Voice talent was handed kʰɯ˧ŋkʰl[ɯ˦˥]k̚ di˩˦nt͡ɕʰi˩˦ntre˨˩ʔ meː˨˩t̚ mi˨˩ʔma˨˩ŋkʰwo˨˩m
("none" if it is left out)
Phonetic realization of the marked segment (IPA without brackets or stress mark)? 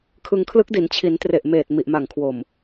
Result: ɯ˦˥